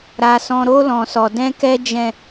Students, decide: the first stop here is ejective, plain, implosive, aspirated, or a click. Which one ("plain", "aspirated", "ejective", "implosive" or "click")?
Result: plain